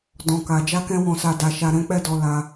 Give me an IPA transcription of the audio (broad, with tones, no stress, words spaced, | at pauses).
dɔ̃˨ka˨ d͡ʒa˧kɛ̃˧wɔ̃˨sa˨ da˨ʃa˨ ɾɛ̃˨˦k͡pɛ˦˨dɔ˧ la˧